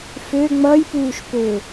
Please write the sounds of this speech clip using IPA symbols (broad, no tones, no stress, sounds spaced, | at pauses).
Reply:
f ø ŋ͡m ʌ j p uː ʃ p ø